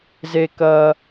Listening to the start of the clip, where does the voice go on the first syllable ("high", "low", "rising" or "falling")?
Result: low